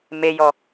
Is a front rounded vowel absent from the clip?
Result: yes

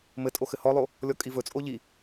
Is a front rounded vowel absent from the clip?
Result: yes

